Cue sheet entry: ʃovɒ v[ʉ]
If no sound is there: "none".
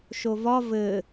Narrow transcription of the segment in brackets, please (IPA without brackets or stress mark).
ɘ